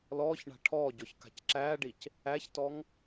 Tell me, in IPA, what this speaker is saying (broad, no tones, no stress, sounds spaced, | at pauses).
l ɔː ç ɳ a̤ ʈʰ ɔː ɟ ɔ ç k a̤ c ǁ æː ɖ i c | æ ç t ɔ ŋ